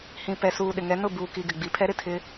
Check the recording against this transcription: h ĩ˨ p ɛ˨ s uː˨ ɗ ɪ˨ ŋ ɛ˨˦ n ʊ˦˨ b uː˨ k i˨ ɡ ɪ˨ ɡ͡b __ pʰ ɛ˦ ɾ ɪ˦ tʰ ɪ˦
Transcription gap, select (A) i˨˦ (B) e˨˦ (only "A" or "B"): A